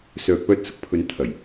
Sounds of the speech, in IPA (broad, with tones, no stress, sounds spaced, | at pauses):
s œː˨ k̚ p œː˧ t̚ s ʊ˨ k̚ pʰ ɵ˨˧ n t̪ʰ ɐ˨˩ j